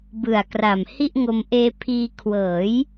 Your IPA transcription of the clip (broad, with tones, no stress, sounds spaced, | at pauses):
b ɯ˨˩ a̯ k r a˨˩ m h i˥˩ ʔ ŋ o˧ m ʔ eː˧ pʰ iː˧ kʰ w ɤː˩˦ j